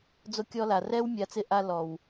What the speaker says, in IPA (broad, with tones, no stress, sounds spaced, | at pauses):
d͡z o˧ kʲ ɔ˧ l a˨ r ɛ˦ w mʲ a˨˦ t͡s ɪ˧ ʔ a˧ l ɔ˨ w